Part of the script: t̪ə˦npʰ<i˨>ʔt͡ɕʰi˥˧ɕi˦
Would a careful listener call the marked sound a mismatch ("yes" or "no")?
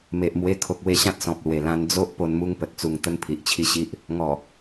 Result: no